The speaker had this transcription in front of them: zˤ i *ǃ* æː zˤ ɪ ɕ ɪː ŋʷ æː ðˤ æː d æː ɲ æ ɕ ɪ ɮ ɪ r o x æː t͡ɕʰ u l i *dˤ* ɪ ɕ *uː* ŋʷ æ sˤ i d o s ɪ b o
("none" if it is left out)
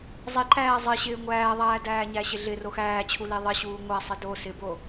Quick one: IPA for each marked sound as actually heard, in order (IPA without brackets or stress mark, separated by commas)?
ǃ, ðˤ, uː